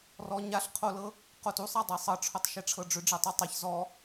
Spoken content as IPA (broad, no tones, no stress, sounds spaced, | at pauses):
r ɔ ɲ a ɬ qʰ o l ɤ | q o t u sˤ a dˤ e sˤ ɤ ʈ͡ʂʰ o tˤ ʃ e ʈ͡ʂʰ ɤ ɖ͡ʐ ʏ ɖ͡ʐ ɛ tˤ o tˤ e ç z ɔ